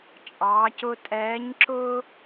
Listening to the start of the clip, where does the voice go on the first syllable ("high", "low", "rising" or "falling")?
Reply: rising